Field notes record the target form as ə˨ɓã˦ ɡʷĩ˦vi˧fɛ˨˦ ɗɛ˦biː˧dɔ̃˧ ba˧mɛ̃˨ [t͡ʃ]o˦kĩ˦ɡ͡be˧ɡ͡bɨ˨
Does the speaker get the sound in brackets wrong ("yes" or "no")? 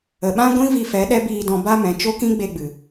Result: no